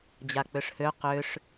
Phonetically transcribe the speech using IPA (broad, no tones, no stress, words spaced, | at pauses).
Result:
d͡ʑak͡pøʂhø qøʂ